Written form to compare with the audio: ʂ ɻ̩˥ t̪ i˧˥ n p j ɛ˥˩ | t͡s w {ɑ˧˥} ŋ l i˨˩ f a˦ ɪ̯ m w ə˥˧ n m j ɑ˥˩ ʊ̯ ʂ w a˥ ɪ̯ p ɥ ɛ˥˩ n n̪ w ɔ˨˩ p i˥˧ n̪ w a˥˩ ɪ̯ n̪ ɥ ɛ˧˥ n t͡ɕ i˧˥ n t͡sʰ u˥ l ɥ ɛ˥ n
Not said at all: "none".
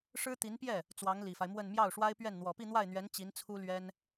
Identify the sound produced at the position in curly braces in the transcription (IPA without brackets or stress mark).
ɑ˧˥